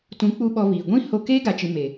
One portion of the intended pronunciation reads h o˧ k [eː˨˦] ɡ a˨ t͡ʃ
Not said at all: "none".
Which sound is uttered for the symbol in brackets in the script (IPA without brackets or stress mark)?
eː˦